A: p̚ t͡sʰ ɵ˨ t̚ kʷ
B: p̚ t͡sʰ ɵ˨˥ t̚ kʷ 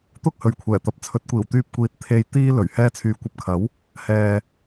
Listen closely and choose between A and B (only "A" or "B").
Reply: B